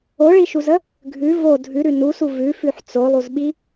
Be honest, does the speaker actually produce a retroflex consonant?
yes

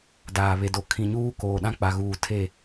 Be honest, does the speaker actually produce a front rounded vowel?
no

